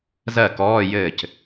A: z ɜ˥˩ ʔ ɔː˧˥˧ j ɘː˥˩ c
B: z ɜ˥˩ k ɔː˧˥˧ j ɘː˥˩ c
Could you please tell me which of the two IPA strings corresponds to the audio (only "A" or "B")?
B